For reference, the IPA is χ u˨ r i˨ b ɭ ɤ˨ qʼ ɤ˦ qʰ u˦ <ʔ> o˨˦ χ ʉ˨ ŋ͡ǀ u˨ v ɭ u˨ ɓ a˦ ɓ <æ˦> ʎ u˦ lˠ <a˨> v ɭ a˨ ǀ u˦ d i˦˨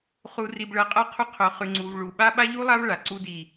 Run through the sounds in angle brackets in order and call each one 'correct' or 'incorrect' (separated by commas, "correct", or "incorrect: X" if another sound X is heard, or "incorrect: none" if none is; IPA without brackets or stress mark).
incorrect: qʰ, incorrect: a˦, incorrect: a˦